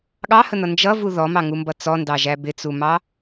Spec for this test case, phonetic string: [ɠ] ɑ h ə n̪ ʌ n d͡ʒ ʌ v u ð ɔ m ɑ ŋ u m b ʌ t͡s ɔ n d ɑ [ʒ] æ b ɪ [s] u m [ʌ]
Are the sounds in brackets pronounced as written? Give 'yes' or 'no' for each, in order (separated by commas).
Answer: yes, yes, no, no